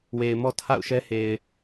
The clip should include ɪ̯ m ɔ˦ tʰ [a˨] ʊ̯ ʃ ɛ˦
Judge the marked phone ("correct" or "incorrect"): incorrect